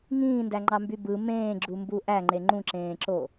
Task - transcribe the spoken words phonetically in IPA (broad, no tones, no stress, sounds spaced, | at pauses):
ŋ ĩː n d æ ŋ͡ǃ ɑ m b y b ɯ m ẽː ɡ͡ǁ u m b u ʔ æ ŋ͡ǃ e ŋ͡ǃ ũ ǁ ẽː ǁ o